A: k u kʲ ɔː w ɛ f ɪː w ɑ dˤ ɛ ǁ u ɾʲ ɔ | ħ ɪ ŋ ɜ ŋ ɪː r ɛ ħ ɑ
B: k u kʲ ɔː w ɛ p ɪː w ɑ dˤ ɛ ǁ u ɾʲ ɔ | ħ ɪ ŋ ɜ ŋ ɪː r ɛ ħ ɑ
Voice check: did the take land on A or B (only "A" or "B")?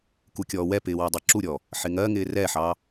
B